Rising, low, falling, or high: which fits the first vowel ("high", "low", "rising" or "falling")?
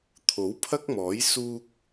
rising